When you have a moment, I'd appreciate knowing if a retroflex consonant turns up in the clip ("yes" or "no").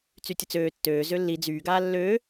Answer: no